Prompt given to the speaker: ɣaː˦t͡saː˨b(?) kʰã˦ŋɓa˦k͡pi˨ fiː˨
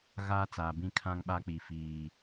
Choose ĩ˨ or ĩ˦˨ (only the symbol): ĩ˦˨